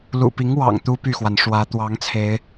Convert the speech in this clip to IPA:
lṵ˨˩pi˨˦ŋwɑ̰˨˩ŋ t̪u˦py˥˨xwa˩nʂwä˨˦ t̪wɑ˨˦ŋt͡sʰe˨˦ɪ̯

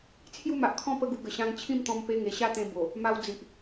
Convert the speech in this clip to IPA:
t͡sʰju˥˧ma˨ʔkʰɔ̃˥˧ pə˦ɡu˧ɡə˨˩ ɕã˧ŋ t͡ɕʰĩ˥˧mt̪ɔ̃˧m pe˧ŋe˨˩ ɕa˥˧t̪ẽ˧ bo˨˩ | ma˧w d͡zi˨ʔ

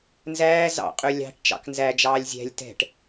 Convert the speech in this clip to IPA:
nzæː zɑ̰qʼø lʲɑ̤ʈ t͡ʃɑ̰knzæd͡ʒɑːlʲ zʲæ̤lʲ tɛ̤ʈ

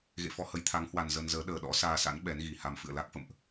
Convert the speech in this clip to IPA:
ɣḛ˧˨fɔ˧hə˨˦j t̪ʰa˨˦ŋhwa˨˩n zə˧nzəː˨˦ ɗəː˨˩ɗɔ̰˧˥saː˧sa̰˧˥n ɓɛ˨˦nɣi˨˩ha˧m fɨ̰˧˨ə̯la˦˥k̚fə̰˧˨mʔ

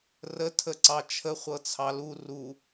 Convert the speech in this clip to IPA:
rə tʰəǀɑt͡ʃʰə χʷɤt͡sʰɑlu ru

